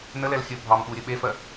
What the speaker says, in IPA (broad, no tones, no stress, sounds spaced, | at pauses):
n ə l ɛ l xʲ ɵ bʱ ɑ m ɓ u ɾʲ ɵ ɓ e f ɜ